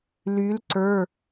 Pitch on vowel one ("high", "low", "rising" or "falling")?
rising